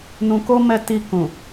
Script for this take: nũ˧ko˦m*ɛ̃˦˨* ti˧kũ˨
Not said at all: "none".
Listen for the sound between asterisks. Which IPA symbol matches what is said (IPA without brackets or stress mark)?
ɛ˦˨